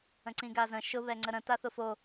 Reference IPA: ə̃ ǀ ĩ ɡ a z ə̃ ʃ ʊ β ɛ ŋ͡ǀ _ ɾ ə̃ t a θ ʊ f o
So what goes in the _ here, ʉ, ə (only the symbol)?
ə